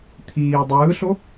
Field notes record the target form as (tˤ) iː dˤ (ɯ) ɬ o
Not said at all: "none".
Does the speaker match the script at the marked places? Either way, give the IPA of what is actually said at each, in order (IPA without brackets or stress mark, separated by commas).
t̪ʰ, ɯː